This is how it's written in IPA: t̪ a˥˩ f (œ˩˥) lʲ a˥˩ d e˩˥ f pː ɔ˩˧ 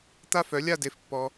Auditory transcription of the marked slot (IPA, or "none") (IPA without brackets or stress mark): œ˩˥